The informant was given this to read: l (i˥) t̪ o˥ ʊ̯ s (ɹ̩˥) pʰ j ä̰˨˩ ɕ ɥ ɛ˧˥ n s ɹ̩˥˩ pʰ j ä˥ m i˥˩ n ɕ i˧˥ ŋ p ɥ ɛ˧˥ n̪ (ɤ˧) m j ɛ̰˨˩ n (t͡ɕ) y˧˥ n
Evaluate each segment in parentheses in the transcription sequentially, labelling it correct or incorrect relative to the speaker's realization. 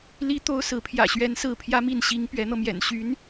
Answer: correct, incorrect: ɹ̩˧˥, correct, incorrect: ɕ

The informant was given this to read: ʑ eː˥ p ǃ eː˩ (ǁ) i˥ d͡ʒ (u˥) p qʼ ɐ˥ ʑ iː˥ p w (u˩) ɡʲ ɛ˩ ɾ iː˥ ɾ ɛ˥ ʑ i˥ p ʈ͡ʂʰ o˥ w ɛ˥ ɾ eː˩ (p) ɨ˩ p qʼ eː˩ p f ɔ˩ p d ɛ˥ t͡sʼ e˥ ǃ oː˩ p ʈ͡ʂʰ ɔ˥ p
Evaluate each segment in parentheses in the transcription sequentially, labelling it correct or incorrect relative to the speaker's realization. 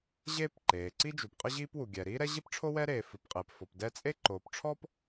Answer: incorrect: ǀ, incorrect: u˩, correct, incorrect: f

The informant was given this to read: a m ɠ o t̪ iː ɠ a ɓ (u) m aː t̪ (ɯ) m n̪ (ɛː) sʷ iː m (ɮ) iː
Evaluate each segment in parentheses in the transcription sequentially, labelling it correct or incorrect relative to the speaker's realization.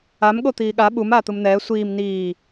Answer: correct, correct, correct, incorrect: n

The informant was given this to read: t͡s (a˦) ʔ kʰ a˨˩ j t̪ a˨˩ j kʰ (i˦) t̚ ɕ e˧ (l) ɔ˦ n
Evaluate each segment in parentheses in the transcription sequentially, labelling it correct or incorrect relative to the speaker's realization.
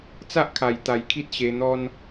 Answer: correct, correct, incorrect: n̪

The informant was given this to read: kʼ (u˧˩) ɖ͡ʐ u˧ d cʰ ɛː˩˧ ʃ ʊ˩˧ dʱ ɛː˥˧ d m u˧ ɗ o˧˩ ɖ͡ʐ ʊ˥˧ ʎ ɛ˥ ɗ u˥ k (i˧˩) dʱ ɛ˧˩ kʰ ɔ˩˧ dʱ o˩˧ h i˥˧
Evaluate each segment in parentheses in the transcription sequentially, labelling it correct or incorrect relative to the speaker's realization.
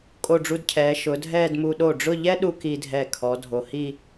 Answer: incorrect: o˧˩, incorrect: i˧

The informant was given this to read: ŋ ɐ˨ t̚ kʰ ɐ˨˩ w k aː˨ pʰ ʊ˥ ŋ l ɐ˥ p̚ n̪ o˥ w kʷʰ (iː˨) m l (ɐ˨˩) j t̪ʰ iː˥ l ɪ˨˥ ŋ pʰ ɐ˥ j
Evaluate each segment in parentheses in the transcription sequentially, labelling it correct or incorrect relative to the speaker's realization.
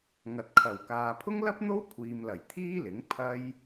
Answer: correct, correct

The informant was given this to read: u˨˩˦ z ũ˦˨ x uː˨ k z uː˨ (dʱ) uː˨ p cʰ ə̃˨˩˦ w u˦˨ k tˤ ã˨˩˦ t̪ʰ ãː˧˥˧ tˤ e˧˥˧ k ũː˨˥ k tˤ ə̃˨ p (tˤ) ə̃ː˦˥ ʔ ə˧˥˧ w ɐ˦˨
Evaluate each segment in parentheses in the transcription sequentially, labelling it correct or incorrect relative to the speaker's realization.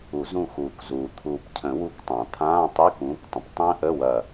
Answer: incorrect: t̪ʰ, correct

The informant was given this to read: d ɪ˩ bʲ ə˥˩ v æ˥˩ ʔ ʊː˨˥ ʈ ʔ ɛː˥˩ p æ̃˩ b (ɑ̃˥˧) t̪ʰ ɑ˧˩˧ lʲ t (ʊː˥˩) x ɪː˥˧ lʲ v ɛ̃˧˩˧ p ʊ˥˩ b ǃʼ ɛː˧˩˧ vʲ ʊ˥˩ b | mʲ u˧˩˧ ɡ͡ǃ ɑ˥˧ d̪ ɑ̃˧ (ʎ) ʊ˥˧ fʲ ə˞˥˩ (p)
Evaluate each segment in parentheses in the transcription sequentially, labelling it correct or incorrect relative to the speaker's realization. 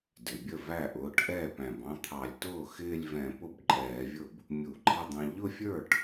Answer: correct, correct, correct, incorrect: ʈ

